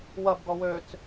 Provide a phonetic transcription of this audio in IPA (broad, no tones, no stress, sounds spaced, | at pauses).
w ɐ b ɡ ɔ w ø t͡s